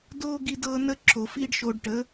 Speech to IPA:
d oː˦ ɡ i˦ d ɤː˦ n ə˦ ǁʰ o˨ f iː˦ ɖ ʃ oː˧ ɖ ʈ ə˨˦

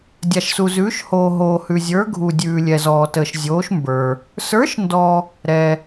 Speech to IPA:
dʲ a˨ ʃ s u˨ z ʉː˨˥ ʃ h oː˨ ɦ oː˨ h ʉ˨ zʲ ə˞˨˥ ɡʱ u˨ dʲ ʉː˨ lʲ ɛ˨ z ɔː˨ t əː˨ ʃ zʲ oː˨˥ ʃ m b ə˞˨ | s ə˞˨˥ ʃ n d ɔ˨ | ɾ ɛ˨

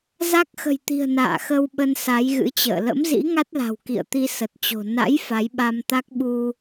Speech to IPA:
z a˦˥ k̚ x ə̤˨˩ j t̪ i̤˨˩ ə̯ n a̰ː˧˨ x ə˧ w ɓ ə˧ n s a˨˦ j ɣ ɨ̰˧˥ t͡ɕ ə̰ː˧˨ l ə̰˧˥ m z ḭ˧˥ ŋ a˦˥ t̚ l a̤˨˩ w k ḭ˧˨ ə̯ t̪ i˧ s ə˨˩ t̚ t͡ɕ o̤˨˩ n a̰˧˥ j f a˨˦ j ɓ a˧ m t̪ a˦˥ k̚ ɓ u˧

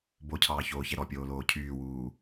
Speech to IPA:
b o cʰ ɑː ç oː ç ɛ ɾ ɔ pʲ oː l oː cʰ yː w uː

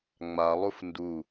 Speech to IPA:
ŋ͡m a lˠ u f n d u

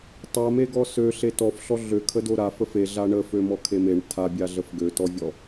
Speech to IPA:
tˤ a m e ɡ ɔ s ø ɬ e t ɔ f ɬ ɔ ɮ ø kʰ ə d o ɾ a f ə f e ɮ a ɳ ə f ø m ɔ kʰ e m e ɳ tʰ a bʲ a ɮ ə f ɡ ø t ɔ vʲ ɔ

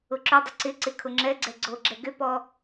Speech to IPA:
ʊ ǁ ʏ dˤ ə ǀ ɪ ǀ ɪ kʰ ʊ ŋ͡ǁ ɛ ɡ͡ǀ ɛ ɡ͡ǀ o ɡ͡ǁ ɛ ɡ ʏ p ɔ

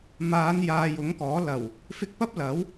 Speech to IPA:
m aː˨˧ n j aː˨ j ʊ˨˥ ŋ k ɔː˨˥ l ɐ˨˩ w | f ɪ˧ k̚ p ɐ˥ p̚ l ɐ˨˥ w

